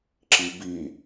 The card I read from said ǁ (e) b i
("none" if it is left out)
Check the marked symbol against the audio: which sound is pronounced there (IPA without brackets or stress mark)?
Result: i